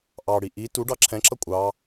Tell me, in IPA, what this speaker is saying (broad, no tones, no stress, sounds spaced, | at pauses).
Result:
ʔ ɑ ɽ i ʔ i t u ɖ ɑ ǁʰ ɛ̃ ǁ ʌ kʷʼ ɑ